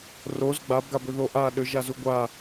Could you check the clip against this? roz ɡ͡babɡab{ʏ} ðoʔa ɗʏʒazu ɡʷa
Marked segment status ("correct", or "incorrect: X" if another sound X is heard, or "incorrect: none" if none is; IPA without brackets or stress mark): correct